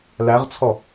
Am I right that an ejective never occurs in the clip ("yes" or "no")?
yes